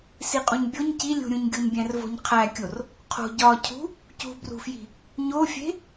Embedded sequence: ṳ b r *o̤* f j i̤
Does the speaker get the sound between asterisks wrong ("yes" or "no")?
yes